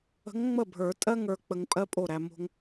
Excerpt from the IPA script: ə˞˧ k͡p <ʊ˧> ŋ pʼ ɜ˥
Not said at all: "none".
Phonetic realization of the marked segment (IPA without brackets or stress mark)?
ə˧